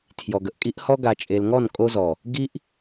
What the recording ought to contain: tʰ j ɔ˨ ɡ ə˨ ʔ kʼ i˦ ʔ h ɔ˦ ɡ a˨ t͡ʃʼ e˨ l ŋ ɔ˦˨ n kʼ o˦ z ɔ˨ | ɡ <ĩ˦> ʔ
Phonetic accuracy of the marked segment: incorrect: i˦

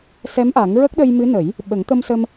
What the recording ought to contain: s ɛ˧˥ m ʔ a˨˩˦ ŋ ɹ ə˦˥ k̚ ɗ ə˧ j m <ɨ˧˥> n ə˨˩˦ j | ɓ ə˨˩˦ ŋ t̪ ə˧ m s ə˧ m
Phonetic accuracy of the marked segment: correct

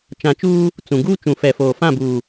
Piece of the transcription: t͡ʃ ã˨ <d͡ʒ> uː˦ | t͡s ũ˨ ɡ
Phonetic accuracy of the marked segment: incorrect: t͡ʃ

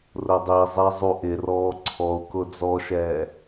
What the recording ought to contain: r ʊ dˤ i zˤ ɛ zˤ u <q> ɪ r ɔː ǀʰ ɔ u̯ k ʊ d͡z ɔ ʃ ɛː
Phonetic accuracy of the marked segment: incorrect: ʔ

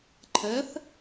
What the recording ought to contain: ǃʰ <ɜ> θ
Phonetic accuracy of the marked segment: incorrect: ɛ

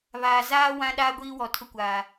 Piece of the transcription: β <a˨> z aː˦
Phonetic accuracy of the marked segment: incorrect: aː˨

